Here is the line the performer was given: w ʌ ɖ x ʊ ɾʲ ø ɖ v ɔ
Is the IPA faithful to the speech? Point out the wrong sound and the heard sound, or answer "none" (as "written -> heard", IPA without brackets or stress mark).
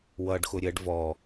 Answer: ø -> ə